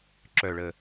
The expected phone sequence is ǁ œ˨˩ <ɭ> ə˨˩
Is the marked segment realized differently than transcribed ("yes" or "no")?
no